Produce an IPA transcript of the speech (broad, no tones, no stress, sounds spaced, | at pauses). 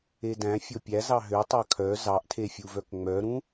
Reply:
e d æ̃ fʲ o pʲ æ z ɑ ɦ ø tˤ ɑ kʰ œ z ɑ ʔ tʰ e fʲ u v œ k ŋ͡m œ ɾ ũ